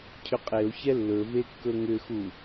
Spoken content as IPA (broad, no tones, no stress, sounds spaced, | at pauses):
cʰ ʏ qʼ e o̯ ç ɛ lː ɵ v e kː ɵ ŋ ʏ x u